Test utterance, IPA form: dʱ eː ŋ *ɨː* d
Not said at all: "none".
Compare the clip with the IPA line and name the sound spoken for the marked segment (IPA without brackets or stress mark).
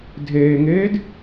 eː